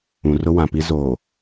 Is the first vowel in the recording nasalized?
yes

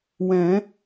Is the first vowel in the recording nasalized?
yes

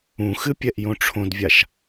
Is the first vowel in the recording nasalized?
yes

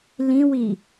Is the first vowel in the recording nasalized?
yes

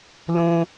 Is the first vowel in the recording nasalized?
yes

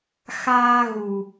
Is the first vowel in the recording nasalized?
no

